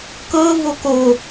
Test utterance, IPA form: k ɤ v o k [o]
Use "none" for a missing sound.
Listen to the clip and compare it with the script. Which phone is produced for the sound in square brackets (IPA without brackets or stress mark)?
o